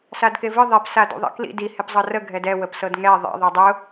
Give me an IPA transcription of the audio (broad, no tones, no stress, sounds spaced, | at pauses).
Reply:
s a d k e v ɨ ðˤ e p s a d ṵ ðˤ ḭ k l ḭ d i h e p zˤ ɤ r ə ɡʱ ɛ d ɛ w ə p s ɤ d ŋ ɛ ðˤ ḭ ðˤ i dˤ ʊ